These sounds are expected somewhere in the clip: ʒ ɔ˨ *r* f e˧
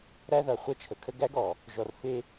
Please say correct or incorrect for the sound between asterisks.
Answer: correct